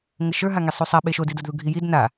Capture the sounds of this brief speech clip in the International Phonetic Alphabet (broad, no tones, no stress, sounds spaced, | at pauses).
ŋ ə ʃ ə˞ ɦ a ŋ e sˤ u sˤ a ɓ e ʃ o d i d ə˞ d ð u ɡʱ i j i d n a